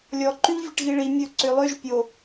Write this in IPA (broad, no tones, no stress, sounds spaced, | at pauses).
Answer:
lʲ ɔ ǃ y ʎ vʲ ɛ ʈ ɣ i ɭ i mʲ ɵ ǀ ø lˠ ø ʒ pʲ o